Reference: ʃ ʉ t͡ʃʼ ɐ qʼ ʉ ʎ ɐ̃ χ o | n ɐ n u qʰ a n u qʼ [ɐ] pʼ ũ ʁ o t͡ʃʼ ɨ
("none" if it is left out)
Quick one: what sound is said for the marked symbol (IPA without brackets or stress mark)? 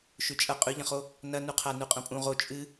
ɐ̃